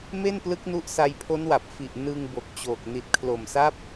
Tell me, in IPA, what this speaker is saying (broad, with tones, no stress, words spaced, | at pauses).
me˥˩nplɯ˦˥k̚nu˦˥ʔ sa˧jpʰo˦˥nwa˨˩p̚ fi˨˩ʔ nɯ˧ŋ bo˨˩k̚t͡ɕoː˨˩k̚ ni˨˩t̚kʰlo˨˩msa˦˥p̚